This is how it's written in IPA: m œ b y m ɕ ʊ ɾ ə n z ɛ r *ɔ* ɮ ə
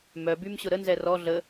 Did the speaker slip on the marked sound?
no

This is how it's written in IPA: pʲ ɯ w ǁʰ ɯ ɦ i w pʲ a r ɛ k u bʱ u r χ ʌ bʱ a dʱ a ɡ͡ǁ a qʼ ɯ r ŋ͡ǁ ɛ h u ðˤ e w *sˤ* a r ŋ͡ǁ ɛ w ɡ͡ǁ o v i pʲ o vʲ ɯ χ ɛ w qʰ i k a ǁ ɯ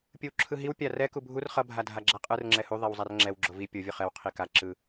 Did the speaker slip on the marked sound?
yes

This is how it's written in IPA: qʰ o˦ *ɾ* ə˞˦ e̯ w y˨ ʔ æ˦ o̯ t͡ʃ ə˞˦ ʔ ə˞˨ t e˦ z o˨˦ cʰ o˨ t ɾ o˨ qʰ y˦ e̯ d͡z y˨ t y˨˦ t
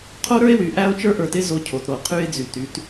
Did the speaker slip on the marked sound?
no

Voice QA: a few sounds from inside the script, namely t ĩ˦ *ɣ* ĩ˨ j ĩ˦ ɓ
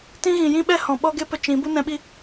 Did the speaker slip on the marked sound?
no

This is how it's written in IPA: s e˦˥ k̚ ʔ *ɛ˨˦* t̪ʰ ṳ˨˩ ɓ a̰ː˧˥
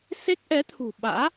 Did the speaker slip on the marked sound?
no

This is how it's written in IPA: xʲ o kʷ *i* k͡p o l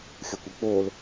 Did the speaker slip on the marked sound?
no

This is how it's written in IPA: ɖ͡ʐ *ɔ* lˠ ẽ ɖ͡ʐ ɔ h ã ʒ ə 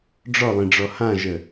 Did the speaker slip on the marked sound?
no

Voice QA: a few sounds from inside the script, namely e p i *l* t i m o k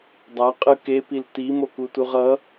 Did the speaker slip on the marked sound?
no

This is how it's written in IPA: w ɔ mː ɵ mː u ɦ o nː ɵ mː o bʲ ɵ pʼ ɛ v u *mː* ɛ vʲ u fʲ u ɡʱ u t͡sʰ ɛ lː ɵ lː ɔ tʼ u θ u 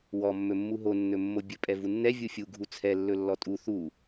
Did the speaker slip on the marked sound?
yes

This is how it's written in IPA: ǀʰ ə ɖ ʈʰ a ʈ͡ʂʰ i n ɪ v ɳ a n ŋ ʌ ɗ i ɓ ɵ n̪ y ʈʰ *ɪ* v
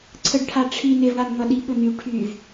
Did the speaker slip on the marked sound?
yes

